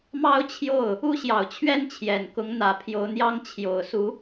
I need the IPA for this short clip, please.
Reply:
m ɑ˥ ʊ̯ t͡ɕʰ j o˥˩ ʊ̯ | u˥ ɕ j ɑ˨˩ ʊ̯ t͡ɕʰ ɥ ɛ˥ n t͡ɕʰ j ɛ˨˩ n k ʊ˧˥ ŋ n̪ ä˨˩ pʰ j o˧˥ ʊ̯ n̪ j ɑ˥ ŋ t͡ɕʰ j o˨˩ ʊ̯ s u˧˥

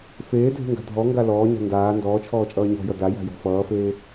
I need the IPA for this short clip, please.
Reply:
f eː dʱ e̤ ŋ ɡ a̤ dʱ ɔ ŋ ɡ a l ɔː ɲ a̤ n d aː n d ɔː t͡ʃʰ ɔː t͡ʃʼ ʌː ɲ ɔ̤ j ʌ d a j a̤ j ɔ̤ f ʌː f eː

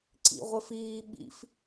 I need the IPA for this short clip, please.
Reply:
ǀ ḭ ʁʷ ɘ f iː ɓ ḭ f

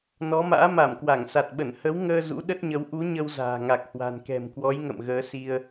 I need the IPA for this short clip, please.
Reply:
n ɔ˨˦ m a̰ː˧˥ m a˧˩ m k w a˧˩ ŋ s a˨˩ t̚ ɓ ə˧˩ n h ə˨˦ w ŋ əː˧ z ṵ˧˥ ɗ ə˦˥ t̚ ɲ ə˨˦ w ʔ u˨˦ ɲ ə˧ w z a̤ː˨˩ ŋ a˨˩ k̚ h w a̤˨˩ n k ɛ̤˨˩ m k w ɔ˨˦ j ŋ ə̰˧˨ m ɣ əː˨˦ s i˧ ə̯

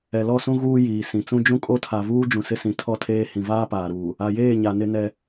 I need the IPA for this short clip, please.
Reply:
ɛ˨ l ɔ˦˨ s ũ˦ ɣ uː˦ j iː˨ s ĩ˨ t͡s ũ˦ d͡ʒ ũ˦ kʼ o˦ tʰ a˨ v uː˦ d͡ʒ ũ˨ s ɪ˦ s ĩ˨ tʰ ɔ˦˨ tʰ eː˦ h ĩ˨ v aː˦ p aː˨ ɾ uː˨ | a˨ j eː˦˨ ɲ a˨ n ɪ˦ n ɛ˦

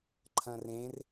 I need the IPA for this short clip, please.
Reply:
ǃʰ ɐ̃ r ẽ r

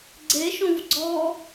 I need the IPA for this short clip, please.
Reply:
ɡ͡ǀ e ʃ õ v ɡ͡ǀ ɔ

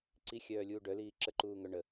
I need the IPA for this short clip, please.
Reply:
ǀ i xʲ œː lʲ uː ɖ œ l iː ǁ ə ǃ uː ŋ œ ɳ ə

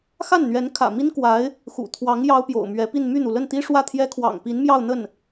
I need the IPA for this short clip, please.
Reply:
x a˥˩ n n̪ ɥ ɛ˧˥ n kʰ ä̰˨˩ m i˥ n k w a˧˥ ɪ̯ | x ṵ˨˩ t̪ʰ w ɑ˧˥ ŋ j ɑ˥ ʊ̯ p j o̰˨˩ ʊ̯ m ɥ ɛ˧˥ p i˥˧ n m y˥˩ n̪ u˩ l ə˥˩ n t̪ i˥ ʂ w ä˥˩ t̪ʰ j ɛ˥ kʰ w ɑ̰˨˩ ŋ p i˧˥ n m j ɑ˥˧ ʊ̯ n̪ ə˥˩ n

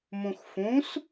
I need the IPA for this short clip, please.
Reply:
m ũ x f ũ s

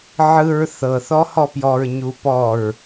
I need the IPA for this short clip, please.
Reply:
ʕ ɯ ɹ θ ɤ θ ɔ h ɔ p j ɔ ɹ ɲ u p ɔ ɹ

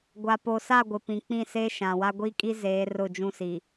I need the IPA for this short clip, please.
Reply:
ɡʷ a˨ p o˨ s a˦˨ ɡʷ ɪ˨ p ĩ˨ k͡p ĩ˦˨ s eː˦ ʃ ã˨ w a˦ ɡʷ i˦ kʼ i˦ z eː˨˦ r ʊ˦˨ d͡ʒ ũ˦ s iː˨

